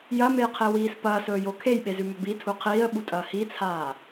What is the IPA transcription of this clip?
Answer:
j ɐ m e j qʰ e w iː s p ɐː s ɵː j o kʰ e j ɓ e z ʉ m ɵ b i tʰ u qʰ iː ə̯ ɓ u tʼ ɐː h i t͡sʰ aː

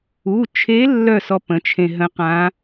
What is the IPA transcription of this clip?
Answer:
u˩˧˩ t͡ʃʰ e˧˥ lː œ˥˩ s ɔ˧ p ə̃˩˧ t͡ʃʰ ẽ˧ ɦ ə̃˧˥ q ã˧˥

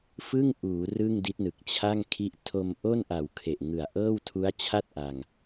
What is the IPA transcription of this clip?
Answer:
f ɯ˥˩ ŋ ʔ uː˩˦ r ɯ˥˩ ŋ d i˦˥ t̚ n ɯ˨˩ k̚ t͡ɕʰ a˥˩ ŋ kʰ i˦˥ ʔ tʰ o˧ m ʔ o˥˩ n ʔ a˨˩ w kʰ e˨˩ ʔ ŋ ɯ˨˩ a̯ ʔ ɤː˥˩ w tʰ u˦˥ a̯ t͡ɕʰ a˥˩ t̚ ʔ a˧ ŋ

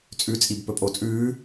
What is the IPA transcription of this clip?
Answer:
t͡sʼ ʉ t͡sʼ i b p ɵ pʼ o t͡sʼ ʉː

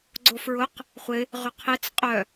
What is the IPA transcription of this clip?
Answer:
ɡ͡ǀ o f ɹ ʊ q | χʷ ɪ | ʁ ʏ qʰ e t͡s qʼ œ

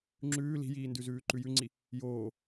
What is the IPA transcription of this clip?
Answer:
ŋ͡ǁ ʉː l i̤ j iː n d ʉ z ʉː ǃ ʉ j ʉ ŋ͡ǀ i | j oː

